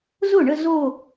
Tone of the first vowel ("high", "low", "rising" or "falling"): falling